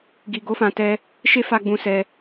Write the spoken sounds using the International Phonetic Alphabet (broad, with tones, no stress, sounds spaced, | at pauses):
ɡ i˧ ɡ o˦ f ã˧ t ɛ˦ | ʃ e˦ f a˧ ɡ͡b ũ˧ s ɛ˧